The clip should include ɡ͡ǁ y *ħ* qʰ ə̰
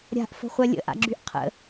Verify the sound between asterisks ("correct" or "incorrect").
incorrect